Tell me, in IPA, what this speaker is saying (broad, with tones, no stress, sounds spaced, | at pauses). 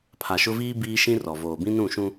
pʰ a˨ ʃ ʊ˦ v iː˦ b iː˦ ʃ ĩ˦ r ɔ˨ v oː˨ b ĩ˦ n ũ˦˨ ʃ ũ˦